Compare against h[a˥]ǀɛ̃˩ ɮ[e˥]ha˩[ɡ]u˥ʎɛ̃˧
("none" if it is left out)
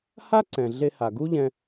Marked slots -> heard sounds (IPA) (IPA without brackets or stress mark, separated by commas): a˥, e˧, ɡ